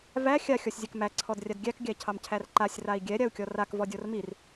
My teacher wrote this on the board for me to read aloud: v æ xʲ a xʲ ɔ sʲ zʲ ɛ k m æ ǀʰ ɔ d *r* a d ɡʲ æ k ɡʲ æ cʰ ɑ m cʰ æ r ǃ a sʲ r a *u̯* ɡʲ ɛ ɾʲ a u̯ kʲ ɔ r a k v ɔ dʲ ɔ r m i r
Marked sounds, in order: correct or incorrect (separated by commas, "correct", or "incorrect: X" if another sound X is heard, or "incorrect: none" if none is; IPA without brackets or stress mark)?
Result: incorrect: rʲ, incorrect: i̯